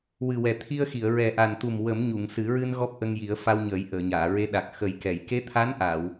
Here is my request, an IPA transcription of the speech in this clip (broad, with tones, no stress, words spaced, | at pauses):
wɨ˨˩wɛ˨˩t̪ʰi˧ə̯xi˨˩˨ə̯ ɹɛ˨˩ʔa˨˩nt̪u˨˩m wə˨˩˦mɲu˨˩˨ŋsɨ˨˩˦ɹɨ˧n ɣɔ˦˥p̚ʔə˧ŋji˨˩˦ə̯ fa˧wɲəː˨˩˦j ʔəː˨˩˨ɲaː˨˩˨ɹe˧˥ɗa˨˩k̚ xə˨˩˦jkɛ˨˩˨j ke˧˥t̪ʰa˧˥n ʔa˨˩˨w